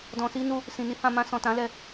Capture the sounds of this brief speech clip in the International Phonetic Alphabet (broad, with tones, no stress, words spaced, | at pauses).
dɔ̃˨si˧nu˧ | sĩ˨ni˨˦ hã˧ mã˧sɔ̃˨tã˨˦ lɛ˧